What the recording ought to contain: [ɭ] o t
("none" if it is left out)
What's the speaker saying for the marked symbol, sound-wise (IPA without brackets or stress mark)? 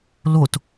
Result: l